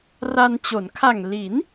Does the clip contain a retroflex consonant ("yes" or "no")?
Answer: no